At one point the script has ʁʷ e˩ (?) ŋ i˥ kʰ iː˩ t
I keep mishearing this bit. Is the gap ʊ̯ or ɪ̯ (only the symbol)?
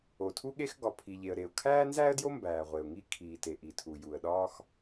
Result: ʊ̯